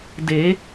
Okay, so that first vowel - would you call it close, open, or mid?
mid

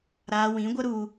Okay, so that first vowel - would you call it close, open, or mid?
open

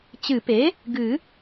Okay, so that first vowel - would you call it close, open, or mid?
close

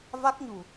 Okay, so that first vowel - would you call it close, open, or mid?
open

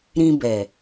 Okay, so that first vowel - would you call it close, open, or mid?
close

